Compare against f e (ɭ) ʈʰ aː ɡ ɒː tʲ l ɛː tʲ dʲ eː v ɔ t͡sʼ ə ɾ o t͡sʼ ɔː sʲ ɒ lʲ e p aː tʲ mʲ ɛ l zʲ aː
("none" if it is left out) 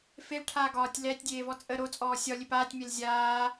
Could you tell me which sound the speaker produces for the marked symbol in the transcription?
l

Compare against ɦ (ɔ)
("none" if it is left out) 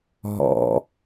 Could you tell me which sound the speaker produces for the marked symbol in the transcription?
ɔ̰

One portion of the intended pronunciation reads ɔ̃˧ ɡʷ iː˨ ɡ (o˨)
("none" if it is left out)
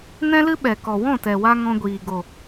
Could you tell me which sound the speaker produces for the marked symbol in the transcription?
o˨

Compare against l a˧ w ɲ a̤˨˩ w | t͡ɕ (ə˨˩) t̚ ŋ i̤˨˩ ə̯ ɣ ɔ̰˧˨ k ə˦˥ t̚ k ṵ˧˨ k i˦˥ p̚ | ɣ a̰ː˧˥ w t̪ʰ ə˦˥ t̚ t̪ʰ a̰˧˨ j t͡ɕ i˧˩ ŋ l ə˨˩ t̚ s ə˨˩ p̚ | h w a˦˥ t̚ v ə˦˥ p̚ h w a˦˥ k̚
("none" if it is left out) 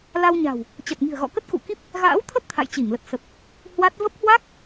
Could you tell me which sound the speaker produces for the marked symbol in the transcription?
ə˨˩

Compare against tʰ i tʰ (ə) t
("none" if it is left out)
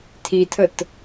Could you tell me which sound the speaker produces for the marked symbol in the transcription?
ə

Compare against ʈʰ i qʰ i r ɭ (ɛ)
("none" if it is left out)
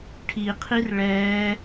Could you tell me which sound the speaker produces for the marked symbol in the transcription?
ɛː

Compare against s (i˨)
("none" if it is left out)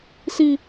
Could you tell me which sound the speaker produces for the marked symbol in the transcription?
i˦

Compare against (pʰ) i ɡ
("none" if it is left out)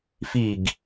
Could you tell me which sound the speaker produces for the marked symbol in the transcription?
f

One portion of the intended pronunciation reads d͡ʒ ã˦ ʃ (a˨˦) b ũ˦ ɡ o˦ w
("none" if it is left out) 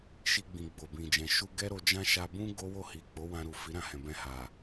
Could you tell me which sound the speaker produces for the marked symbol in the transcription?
a˧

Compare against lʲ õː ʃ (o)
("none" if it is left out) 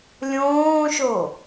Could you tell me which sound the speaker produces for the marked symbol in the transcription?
o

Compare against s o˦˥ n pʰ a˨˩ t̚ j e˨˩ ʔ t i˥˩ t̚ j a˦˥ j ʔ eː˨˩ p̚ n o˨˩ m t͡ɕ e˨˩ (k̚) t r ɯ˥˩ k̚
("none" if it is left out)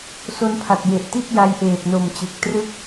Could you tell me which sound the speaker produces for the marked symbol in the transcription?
k̚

